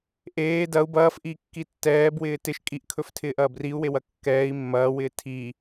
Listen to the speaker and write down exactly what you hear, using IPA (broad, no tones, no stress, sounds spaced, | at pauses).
ʔ eː d ɐ u̯ b ɐː f ʔ i kː i tː ɛː b w ɪː t ɪ ʃ kʼ i ʔ kʰ ɵ f tʰ ɪː ʔ ɐː b r i u̯ w e w ɐ kː ɛː i̯ mː ɐː w ɪː tʰ i